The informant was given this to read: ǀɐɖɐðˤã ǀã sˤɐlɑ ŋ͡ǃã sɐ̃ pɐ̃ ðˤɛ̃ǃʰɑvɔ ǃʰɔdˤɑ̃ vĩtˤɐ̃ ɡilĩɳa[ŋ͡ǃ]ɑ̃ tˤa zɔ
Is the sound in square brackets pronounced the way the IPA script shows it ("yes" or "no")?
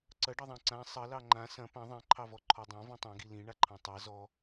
no